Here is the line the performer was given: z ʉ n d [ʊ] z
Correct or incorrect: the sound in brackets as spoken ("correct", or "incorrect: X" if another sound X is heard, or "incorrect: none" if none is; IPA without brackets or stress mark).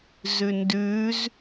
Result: incorrect: ʉ